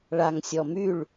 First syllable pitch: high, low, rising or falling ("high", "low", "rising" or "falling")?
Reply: low